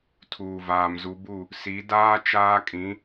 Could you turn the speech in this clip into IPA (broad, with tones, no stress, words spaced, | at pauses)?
tʰuː˨vaː˨mzu˨˦bu˦˨ | si˨˦daː˦ t͡ʃaː˦kʼĩ˨˦